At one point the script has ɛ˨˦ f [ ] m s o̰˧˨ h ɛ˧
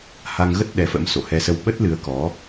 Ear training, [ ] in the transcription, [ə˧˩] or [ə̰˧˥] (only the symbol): ə̰˧˥